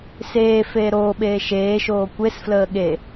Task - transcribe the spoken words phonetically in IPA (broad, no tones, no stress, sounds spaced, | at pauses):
s eː f eː ɾ oː ɓ eː ʃ eː ʃ oː kʷ e s f l əː ɠ e